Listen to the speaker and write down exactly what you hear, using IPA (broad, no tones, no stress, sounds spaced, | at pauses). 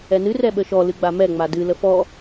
ɛ n ɨ r ɛ ɓ ə ʃ ɔ l ɨ ɡ͡b a m ɛ ŋ͡m a d ɨ l ə f ɔ